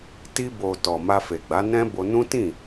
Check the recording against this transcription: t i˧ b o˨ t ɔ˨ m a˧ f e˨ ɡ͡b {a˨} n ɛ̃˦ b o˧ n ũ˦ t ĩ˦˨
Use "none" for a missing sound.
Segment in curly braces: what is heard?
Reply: a˨˦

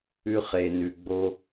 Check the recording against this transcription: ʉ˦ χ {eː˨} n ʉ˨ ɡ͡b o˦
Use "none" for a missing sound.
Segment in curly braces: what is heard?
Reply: e˨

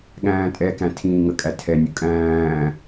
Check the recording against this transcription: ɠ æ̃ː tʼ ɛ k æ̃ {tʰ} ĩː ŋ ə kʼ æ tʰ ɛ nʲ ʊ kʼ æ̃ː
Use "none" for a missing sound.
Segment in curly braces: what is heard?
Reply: tʰ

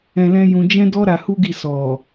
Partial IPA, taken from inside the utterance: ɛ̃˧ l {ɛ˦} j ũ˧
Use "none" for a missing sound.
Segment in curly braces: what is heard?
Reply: ɛ̃˦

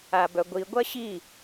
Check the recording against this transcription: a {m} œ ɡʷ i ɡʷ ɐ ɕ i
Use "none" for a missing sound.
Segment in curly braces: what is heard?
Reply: b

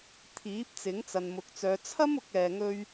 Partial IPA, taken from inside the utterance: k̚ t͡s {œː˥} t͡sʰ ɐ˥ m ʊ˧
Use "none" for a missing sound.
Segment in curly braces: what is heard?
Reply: œː˨˧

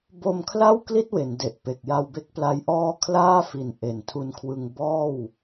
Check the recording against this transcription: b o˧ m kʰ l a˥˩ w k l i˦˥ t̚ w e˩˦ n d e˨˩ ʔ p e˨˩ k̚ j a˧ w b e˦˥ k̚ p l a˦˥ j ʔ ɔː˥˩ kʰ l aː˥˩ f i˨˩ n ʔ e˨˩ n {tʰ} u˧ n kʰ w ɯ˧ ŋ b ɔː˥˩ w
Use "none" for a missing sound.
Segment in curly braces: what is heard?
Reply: tʰ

